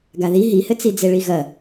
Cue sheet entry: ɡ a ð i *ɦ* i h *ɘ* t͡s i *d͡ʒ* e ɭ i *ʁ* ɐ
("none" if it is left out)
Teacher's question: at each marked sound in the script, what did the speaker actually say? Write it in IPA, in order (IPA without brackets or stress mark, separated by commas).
ɦ, ɘ, d͡z, ɣ